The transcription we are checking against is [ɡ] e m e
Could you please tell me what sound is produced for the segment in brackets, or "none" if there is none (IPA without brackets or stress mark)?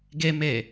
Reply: ɡ